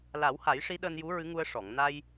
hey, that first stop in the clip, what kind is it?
implosive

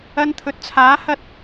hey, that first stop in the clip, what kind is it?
aspirated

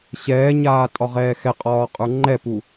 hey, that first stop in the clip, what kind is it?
ejective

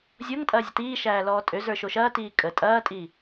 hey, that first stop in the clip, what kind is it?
ejective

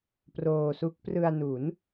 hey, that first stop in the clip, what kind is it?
plain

